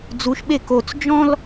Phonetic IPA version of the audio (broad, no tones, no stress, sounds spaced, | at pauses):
d͡z u ʃ ɓ e k o t͡s d͡ʒ ɔ̃ l